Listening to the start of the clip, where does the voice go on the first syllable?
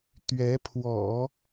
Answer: rising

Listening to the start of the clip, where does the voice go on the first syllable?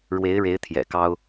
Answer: rising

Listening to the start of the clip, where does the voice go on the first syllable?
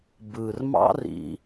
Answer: low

